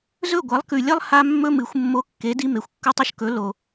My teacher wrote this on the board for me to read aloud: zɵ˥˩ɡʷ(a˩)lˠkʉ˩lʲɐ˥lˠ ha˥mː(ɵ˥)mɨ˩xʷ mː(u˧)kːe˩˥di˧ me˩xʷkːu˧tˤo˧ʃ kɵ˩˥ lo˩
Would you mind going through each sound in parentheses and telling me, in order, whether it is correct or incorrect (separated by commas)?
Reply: incorrect, correct, incorrect